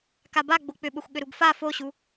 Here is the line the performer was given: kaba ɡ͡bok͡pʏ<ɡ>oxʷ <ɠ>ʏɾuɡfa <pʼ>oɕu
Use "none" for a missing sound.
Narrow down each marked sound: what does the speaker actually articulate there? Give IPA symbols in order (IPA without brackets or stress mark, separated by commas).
ɓ, ɠ, f